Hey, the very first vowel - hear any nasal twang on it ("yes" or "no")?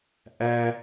no